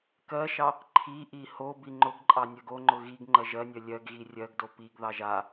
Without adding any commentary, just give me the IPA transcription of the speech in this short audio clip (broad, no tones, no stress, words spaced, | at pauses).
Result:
kɜʃɑ | ǃʰiʔi ho biŋ͡ǃʊɡǃʼɑ nʲɜɡoŋ͡ǃʊ ɣiɡ ŋ͡ǃɜʒɜnʲɜ lʲɜɡɣi rʲɜɡdo piɡðɑʒ a